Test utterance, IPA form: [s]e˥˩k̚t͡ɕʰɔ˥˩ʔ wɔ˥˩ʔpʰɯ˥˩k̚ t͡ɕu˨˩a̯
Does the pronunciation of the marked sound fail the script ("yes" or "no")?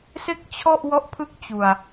no